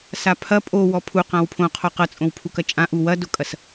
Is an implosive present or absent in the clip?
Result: absent